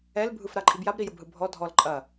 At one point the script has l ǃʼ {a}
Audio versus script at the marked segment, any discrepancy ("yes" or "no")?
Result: yes